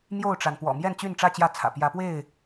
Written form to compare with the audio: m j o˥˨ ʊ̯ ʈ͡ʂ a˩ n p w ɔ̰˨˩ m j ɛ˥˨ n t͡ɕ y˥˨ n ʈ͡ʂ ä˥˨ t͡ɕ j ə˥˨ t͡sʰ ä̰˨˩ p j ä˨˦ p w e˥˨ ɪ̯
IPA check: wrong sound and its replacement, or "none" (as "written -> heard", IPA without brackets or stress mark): ə˥˨ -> ä˥˨